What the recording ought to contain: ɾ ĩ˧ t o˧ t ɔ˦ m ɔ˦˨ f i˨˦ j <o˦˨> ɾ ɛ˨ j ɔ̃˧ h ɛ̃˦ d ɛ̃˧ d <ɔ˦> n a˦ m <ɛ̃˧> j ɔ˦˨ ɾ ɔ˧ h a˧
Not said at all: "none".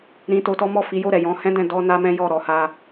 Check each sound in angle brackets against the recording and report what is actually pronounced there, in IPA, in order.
o˦˨, ɔ˦, ɛ̃˦

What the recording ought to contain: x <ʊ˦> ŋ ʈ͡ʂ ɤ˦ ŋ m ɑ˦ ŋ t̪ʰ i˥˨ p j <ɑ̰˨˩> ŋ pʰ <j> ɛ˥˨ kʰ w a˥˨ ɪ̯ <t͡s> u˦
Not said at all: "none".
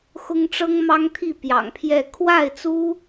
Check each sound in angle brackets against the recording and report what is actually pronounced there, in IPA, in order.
ʊ˦, ɑ̰˨˩, j, t͡s

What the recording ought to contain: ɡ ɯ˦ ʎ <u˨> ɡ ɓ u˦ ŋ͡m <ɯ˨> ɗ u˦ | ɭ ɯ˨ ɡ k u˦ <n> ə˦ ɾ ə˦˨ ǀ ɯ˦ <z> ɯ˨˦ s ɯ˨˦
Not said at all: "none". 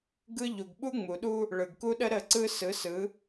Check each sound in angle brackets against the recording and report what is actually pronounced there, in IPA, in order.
u˨, u˨, ɗ, s

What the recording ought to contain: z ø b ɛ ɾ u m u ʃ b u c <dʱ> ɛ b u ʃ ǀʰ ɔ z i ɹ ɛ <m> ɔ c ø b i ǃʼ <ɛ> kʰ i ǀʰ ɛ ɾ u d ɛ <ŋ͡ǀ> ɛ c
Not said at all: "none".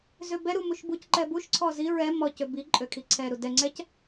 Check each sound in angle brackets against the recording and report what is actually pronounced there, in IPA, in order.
ǃ, m, ø, ŋ͡ǀ

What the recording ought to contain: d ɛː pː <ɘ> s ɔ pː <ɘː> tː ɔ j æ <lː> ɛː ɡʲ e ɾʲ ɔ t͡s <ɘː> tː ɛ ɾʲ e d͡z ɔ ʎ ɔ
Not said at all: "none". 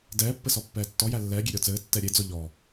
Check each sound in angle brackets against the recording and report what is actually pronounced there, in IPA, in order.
ɘ, ɛː, lː, ɘː

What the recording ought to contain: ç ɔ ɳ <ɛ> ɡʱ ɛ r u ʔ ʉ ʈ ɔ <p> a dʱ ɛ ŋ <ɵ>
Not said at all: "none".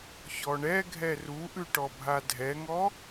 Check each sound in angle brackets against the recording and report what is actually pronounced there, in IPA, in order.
ɛ, bʱ, ɔ

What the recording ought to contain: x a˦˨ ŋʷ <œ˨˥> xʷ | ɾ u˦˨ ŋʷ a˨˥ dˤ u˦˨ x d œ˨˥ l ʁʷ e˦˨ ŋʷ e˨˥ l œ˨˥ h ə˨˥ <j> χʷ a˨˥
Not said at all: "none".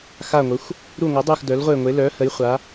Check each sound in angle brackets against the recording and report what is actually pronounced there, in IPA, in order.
ə˨˥, j

